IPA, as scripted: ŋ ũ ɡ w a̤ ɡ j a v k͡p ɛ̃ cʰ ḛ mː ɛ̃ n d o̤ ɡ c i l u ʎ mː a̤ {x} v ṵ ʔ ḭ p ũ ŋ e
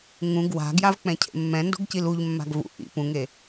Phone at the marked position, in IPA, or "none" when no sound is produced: ɡ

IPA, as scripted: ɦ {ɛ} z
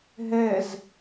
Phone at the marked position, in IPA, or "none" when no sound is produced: ɛ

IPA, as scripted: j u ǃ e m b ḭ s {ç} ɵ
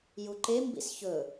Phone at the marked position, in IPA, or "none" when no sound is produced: ç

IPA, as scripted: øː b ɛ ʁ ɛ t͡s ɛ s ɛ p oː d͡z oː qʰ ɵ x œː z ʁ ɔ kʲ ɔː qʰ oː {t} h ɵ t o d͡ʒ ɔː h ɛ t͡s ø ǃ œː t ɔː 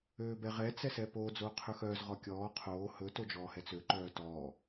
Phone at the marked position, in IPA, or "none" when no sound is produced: none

